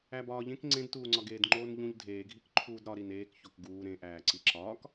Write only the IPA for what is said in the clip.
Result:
æbɒːʎẽk ŋ͡ǀẽdtuːŋ͡ǀɒɡeːd ŋ͡ǃoːnʎũʎ dʱeːɡʱik ǃʰuːdɾɒɾin eːk çokɡuː ɾẽʔæː ǀiǁɒːk

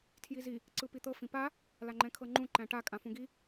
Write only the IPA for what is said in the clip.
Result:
tʰjizi | ǀɯpit̪ɤ fĩpa | laŋ͡ǃɛ̃kʰɤŋ͡ǃũ ǃæ̃ʈa kʼãfũɡi

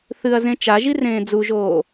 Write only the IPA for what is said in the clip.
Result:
θɨɐ̯zẽ t͡ʃaʒirẽː d͡zuʒoː

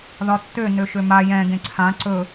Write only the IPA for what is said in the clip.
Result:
ðɒtːø nøʃøma jɛ̃ ɡẽǀʰã ǀɵ

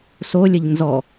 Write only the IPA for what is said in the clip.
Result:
solʲəʎ nzɔ

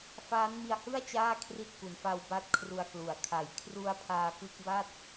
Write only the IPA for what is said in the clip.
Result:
faː˦˥nmi˧a̯hɯ˥˩a̯ t͡ɕaː˥˩kʰri˦˥t̚ ku˨˩nfa˧w ba˦˥t̚kʰru˧a̯klu˨˩a̯ kʰa˩˦jkʰru˧a̯pʰaː˧ kɯ˦˥k̚ba˥˩t̚

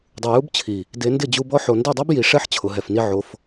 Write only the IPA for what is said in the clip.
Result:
dˤu˨ju˦bt͡ɕʰi˨ | de˨˦ndɪ˦˨d͡ʑu˧bɔ˦ ħo˨nde˦˨dˤa˦b ji˨ʂɛ˦ħ t͡ɕʰʊ˨ɦɛ˨fni˦ʕo˧f

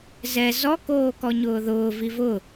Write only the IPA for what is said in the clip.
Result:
zɛ zɔ koːkɔɲʊːðʊː vivʊ

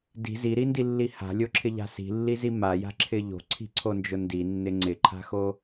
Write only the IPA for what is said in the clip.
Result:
di̤ ziɾindilːi ha̤lʲoǁʰɪʎa̤ si̤lːizi maja̤ǁʰɪ ʎo̤ǀʰi̤ǀʰond͡ʒʊ ndinːɪ ŋ͡ǀɪǃʰa̤xo

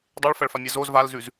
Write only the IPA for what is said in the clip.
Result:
dˤeɭfɐɭfamʲɛ zoz valzʉz

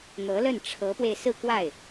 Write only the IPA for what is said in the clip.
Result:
n̪ɤ˧˥lə˥˩n ʈ͡ʂʰɤ˧˥pwe˧ɪ̯ sɹ̩˥˧kwa˥˩ɪ̯

